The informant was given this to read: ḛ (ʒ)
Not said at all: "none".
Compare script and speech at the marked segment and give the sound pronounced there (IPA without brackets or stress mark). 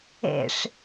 ʂ